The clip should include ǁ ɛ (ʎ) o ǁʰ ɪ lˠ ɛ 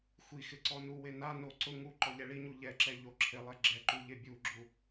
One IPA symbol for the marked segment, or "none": ʎ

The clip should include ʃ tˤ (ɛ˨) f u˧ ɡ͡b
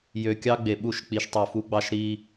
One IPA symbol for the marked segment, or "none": ø˨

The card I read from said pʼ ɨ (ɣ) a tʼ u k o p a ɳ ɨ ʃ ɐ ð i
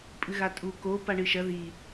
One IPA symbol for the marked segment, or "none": ɣ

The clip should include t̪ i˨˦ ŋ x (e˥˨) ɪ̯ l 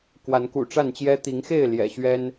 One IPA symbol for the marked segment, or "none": e˥˨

